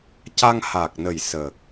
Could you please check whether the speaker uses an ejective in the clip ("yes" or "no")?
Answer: no